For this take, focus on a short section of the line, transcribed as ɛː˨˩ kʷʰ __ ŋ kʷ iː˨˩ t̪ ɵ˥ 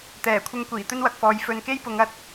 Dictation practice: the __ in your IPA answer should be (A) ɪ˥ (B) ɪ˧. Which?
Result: B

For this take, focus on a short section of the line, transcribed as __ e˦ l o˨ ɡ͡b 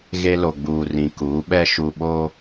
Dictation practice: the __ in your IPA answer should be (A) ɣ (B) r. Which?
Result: A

